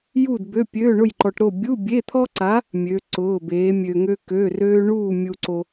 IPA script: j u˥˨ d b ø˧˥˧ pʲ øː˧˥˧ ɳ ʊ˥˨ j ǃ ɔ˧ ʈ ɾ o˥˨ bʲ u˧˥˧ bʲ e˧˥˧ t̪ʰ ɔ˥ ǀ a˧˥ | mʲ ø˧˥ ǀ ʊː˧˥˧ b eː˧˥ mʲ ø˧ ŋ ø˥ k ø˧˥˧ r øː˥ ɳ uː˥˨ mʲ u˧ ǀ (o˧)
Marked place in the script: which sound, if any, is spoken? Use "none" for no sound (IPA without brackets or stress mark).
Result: o˧